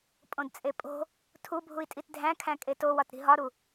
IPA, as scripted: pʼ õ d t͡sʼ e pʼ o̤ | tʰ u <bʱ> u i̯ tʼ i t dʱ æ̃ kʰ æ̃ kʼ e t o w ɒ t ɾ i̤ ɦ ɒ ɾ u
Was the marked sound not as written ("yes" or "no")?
no